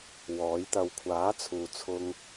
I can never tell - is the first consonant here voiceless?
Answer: no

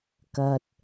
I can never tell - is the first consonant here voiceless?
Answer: yes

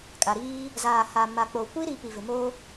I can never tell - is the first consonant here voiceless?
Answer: yes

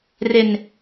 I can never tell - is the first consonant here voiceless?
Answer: no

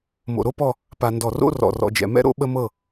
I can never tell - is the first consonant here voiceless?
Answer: no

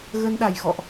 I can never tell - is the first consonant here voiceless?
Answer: no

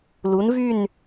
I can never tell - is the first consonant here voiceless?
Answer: no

